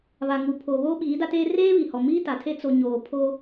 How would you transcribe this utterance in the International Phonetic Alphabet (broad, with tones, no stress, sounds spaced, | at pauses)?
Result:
β a˨ ŋ u˨ pʰ oː˨ β oː˦ ɓ iː˨˦ d a˦ t eː˦ r eː˦ β i˨ h ɔ˨ m iː˦ t a˨ tʰ e˦ t͡s o˨ ɲ oː˨ pʰ o˦